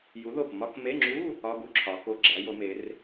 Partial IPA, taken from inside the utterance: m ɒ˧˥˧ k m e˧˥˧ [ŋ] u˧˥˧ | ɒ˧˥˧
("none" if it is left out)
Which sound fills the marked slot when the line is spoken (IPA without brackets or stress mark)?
ŋ͡ǁ